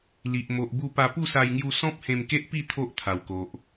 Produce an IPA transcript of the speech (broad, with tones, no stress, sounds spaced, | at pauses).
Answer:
l i˨ ʔ m o˨ ʔ b u˧ p a˧ p u˥˧ s a˧ j ŋ j u˧ s ɔ̃˦ p̚ h ẽ˧ m k e˦ ʔ p i˥˧ t̪ʰ o˦ ʔ t̪ʰ a˨˩ w k o˨ ʔ